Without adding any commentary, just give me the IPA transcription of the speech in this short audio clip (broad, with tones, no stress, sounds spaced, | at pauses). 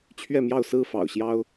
t͡ɕʰ ɥ ɛ˥˨ m j ɑ˥˨ ʊ̯ s ɹ̩˥˨ f ɑ̰˨˩ ʊ̯ ɕ j ɑ˦ ʊ̯